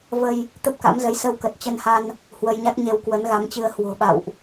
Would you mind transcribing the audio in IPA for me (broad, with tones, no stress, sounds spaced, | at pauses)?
v ə˧ j | t̪ ə˦˥ p̚ k a̰˧˥ m z ə˨˦ j s ə˧ w k ə˨˩ t̚ t͡ɕ ə˧ n h a˧ n | h w ə˧ j ɲ a˦˥ k̚ ɲ e˧ w k w ə˨˦ n ɣ a˨˦ m t͡ɕ ɨ˧ ə̯ h w o̤˨˩ ɓ a̰˧˨ w ʔ